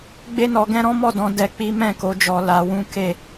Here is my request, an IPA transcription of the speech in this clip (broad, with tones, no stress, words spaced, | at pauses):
ɡ͡be˦nɔ˧ɡɛ̃˦ ɾɔ̃˦mɔ˦˨dɔ̃˧ dɛ˧k͡pi˦ mɛ̃˦˨ko˨˦d͡ʒɔ˧ la˧wũ˦ke˦˨